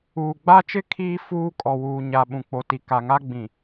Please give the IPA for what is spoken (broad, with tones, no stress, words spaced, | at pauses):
uː˨ ɡ͡ba˦t͡ʃɪ˦ kʰiː˦ fuː˦kʼɔ˨ wuː˨ɲa˨ ɓũ˨k͡po˨ti˨ ka˨ŋa˦ɡ͡bĩ˨